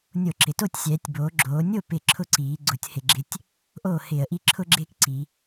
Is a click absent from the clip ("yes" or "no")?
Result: no